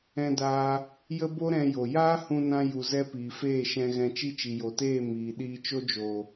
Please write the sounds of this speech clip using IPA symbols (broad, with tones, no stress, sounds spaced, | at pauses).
ɛ̃˧ d aː˧ | j ə˦ b o˦ ɾ ɛ̃˧ j o˨ j aː˦ h ũ˧ n ã˧ j u˨ z ɛ˧ p iː˨ f eː˦˨ ʃ ɛ̃˧ ɣ ɛ̃˧ t͡ʃ i˦ t͡ʃ i˨ j o˨ t eː˦˨ m iː˨ ɗ iː˧ t͡ʃ o˦ d͡ʒ oː˨